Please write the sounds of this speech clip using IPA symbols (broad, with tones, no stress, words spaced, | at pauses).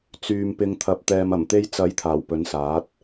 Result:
t͡syː˧mpɪ˧ŋ t̪ʰɐ˨p̚t̪ɛː˨m ɐ˨˩mt̪e˧jt͡sɐ˨˥j t̪ʰaː˨˩wpɵ˨˥nsaː˨˥t̚